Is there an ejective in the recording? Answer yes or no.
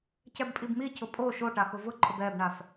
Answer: yes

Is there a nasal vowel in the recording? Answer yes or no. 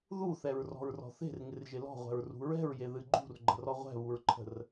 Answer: no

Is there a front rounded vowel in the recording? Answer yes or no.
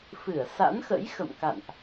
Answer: no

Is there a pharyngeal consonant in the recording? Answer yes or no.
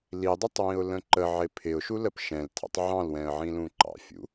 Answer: yes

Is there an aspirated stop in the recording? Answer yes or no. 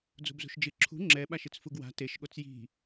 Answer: yes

